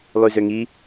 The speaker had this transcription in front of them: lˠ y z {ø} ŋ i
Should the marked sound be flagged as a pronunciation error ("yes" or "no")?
no